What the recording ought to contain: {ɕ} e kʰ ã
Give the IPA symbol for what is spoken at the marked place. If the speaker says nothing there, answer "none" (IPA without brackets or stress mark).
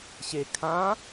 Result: ɕ